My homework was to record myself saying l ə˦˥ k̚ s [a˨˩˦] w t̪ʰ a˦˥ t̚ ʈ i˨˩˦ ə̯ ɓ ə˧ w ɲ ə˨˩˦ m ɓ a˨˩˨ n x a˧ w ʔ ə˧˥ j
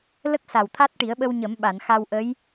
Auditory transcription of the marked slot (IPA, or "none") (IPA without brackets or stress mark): a˨˩